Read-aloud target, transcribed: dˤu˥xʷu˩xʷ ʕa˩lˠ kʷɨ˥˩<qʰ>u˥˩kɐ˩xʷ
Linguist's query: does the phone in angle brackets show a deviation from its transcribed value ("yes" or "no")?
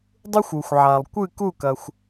yes